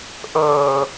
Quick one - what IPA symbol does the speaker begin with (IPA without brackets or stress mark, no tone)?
ʔ